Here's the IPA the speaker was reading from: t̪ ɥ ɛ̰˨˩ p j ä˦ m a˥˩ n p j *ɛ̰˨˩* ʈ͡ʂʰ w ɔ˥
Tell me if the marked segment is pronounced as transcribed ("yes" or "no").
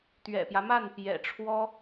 yes